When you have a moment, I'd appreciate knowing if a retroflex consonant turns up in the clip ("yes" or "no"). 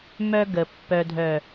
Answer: no